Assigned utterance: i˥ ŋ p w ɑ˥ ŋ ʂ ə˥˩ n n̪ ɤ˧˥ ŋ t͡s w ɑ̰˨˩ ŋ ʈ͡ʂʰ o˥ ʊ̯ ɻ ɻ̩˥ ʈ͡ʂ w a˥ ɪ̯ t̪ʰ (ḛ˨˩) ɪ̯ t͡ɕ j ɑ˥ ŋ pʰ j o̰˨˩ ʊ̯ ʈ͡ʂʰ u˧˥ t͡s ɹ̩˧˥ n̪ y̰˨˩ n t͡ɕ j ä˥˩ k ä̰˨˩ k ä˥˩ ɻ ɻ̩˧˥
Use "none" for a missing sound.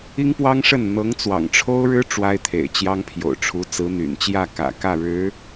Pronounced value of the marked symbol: ḛ˨˩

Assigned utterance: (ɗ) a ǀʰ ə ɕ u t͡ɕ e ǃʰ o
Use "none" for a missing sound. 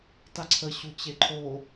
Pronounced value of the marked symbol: t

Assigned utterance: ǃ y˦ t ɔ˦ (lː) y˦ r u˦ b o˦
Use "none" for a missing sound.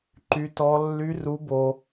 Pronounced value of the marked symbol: lː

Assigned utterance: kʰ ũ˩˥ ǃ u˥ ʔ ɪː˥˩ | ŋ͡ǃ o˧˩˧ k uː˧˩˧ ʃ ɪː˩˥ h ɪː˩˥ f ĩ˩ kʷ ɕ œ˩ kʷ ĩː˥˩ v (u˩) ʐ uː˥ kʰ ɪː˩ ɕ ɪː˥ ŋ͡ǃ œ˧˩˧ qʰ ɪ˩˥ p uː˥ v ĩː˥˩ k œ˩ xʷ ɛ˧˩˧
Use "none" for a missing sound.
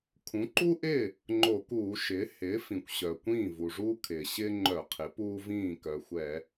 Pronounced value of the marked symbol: u˩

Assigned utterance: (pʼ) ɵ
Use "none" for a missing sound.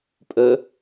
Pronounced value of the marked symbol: pʼ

